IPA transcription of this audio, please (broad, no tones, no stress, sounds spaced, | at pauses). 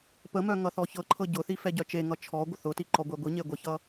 p ə m œ ŋ ʌ θ ɔ ç ɤ ǃʰ ɤ ɟ ʊ θ i f ɛ ɟ œ t͡ʃ e ŋ ʌ t͡ʃʰ ɔ ɡʷ ə θ ʊ t i ǃ ɔ ɡʷ ɛ ɡʷ i ɲ e ɡʷ ə ç ʌ